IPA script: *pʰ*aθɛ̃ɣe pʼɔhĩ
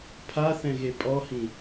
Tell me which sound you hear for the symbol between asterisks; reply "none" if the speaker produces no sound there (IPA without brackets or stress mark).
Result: pʰ